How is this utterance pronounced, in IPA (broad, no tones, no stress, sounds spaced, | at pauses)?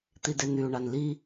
t̪ i d e n̪ y u̯ ɳ a n l i